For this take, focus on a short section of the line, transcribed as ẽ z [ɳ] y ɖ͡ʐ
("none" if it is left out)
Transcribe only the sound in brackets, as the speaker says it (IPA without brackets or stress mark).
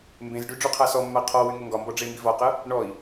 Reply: ɖ